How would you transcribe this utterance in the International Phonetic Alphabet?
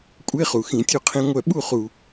kʷʼe˧˥˧χu˩ xĩ˧˩˧tʲu˥˨qʰĩ˦˥ŋʷœ˥˨ ɓu˥˨χu˩

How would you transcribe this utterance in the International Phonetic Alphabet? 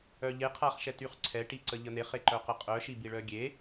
œʎe qʰaχʃɛtyχǀʰɛ ʈiǀəʎən̪eχ eǃœqəqʼœ ʃibiɭœɡʲe

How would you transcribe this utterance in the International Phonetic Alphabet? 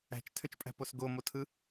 æ̤t͡ʃtʰøt͡ʃpʼæ̤pos ɡomotʰɯ

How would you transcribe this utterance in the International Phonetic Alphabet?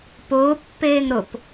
pʊːpːeːŋ ɾʊp

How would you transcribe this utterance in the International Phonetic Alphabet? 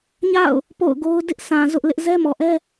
ɲa̰˦˨ʊ̯ | po̰˦˨ʊ̯ɡo˦ʊ̯ dɪ˦ʔsã˨ zʊ˦ʔlɪ˦ʔ zɛ˦ mɔ˨ʔɛ˦

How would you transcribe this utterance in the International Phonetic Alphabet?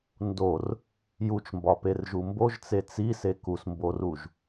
ndor | jut͡ʃmbɒperʒu mboʒt͡se t͡sise kusmboruʒ

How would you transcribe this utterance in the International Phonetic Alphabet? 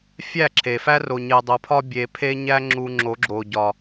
fʲæ˦˨ǁʰe˨fæ˦ ro˨ɲe˨dˤo˨pʰɒ˧ bʲe˨pʰe˧ɲæ˧ŋ͡ǁu˨ ŋ͡ǁo˨˦ɡ͡ǁo˨ ɟɒ˨

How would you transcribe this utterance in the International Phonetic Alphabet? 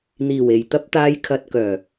n̪iː˨˩we˨˩jt̪ɐ˧p̚t̪aː˨˧j kʰɐ˨t̚kœː˨˩

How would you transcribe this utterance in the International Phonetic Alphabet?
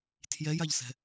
tʰjɛjaʎsɛ̤

